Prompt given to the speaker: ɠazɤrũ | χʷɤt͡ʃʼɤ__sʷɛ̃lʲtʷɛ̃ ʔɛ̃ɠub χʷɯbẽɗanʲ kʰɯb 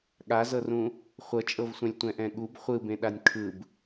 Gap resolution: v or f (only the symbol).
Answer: v